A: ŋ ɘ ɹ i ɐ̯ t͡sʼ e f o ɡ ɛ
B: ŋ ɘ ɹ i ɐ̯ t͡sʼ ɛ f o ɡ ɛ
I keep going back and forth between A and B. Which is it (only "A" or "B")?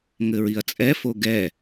B